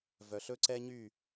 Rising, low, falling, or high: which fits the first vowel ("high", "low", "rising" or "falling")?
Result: low